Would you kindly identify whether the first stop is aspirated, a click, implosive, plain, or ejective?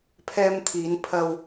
aspirated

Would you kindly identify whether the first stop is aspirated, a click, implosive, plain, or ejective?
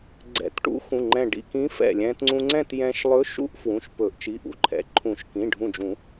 click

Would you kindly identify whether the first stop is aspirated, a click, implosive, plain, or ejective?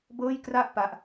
plain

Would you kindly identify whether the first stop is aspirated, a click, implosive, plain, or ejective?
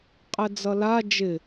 ejective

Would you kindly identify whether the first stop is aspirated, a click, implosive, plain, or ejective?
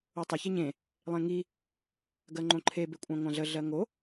plain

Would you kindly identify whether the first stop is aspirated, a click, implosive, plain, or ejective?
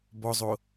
plain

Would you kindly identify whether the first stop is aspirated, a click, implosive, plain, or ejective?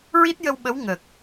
plain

